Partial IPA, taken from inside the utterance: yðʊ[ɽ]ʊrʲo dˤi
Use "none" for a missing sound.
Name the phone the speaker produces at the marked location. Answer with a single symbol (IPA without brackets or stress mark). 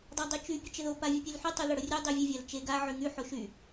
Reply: ɽ